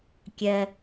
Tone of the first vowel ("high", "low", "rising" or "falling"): low